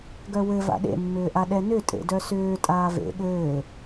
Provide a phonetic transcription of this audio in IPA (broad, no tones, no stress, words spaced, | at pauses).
ɡœwɘ va̰ɗḛmːʏːʔa ɗɛnʏ tʼḛdœsʏː tʼaːvḛ ɠɘː